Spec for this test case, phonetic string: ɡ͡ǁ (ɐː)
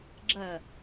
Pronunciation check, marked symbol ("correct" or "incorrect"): correct